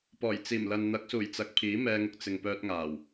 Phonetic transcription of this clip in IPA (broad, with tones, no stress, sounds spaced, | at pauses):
p ɔː˨˩ j t͡s iː˨˩ m l ɐ˨ n n̪ ɐ˨˥ k̚ s uː˨˩ j t͡s ɐ˨ k̚ pʰ iː˨˥ m ɛː˧ ŋ ʊ˧ k̚ t͡s ɪ˨ ŋ p œː˧ t̚ ŋ aː˨˩ w